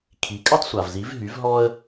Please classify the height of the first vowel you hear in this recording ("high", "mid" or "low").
high